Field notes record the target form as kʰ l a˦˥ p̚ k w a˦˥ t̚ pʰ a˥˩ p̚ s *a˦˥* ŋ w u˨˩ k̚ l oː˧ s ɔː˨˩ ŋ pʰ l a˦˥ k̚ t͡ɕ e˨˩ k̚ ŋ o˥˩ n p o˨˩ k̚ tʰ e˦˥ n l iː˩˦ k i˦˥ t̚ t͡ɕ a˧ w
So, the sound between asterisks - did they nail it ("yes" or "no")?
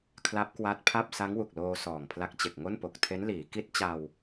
yes